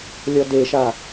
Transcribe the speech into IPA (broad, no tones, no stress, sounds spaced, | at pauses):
lʲ ɔ d e ʃ a